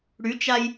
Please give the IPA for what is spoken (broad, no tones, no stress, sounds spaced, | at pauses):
ɽ y t͡ʃ a j